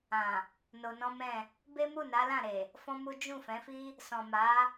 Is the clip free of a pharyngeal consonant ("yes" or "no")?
yes